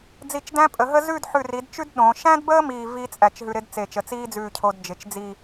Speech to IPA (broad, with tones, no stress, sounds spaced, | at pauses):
d͡z i˧˩ t͡ʃ d æ̃˥ pʼ ə˩˧ ɦ ə˥ z ʉ˥˧ d ħ ʉ˧˩ r i˩˧ d t͡ʃ ʉ˥ d ɗ õ˩˧ ʃ æ̃˥ d b əː˥ m iː˥˧ v iː˥ t͡sʼ æ˧˩ t͡ʃ ɦ ʉ˧ ɾ ɪ˥ d t͡s e˧˩ t͡ʃ ə˧˩ t͡s iː˥ d͡z ʉː˧˩ cʰ o˧ d d͡ʒ ɪ˩˧ t͡ʃ d͡z i˥˧